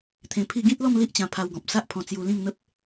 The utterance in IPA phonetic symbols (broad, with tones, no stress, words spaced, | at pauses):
t̪ʰẽ˧pʰi˥˧ ɡĩ˦t̚lɔ˥˧m li˦ʔt͡ɕã˧ pʰa˧wɡɔ̃˨p̚sa˦ʔpʰɔ̃˧ t͡sju˧lĩ˥˧ŋn̪ə˦p̚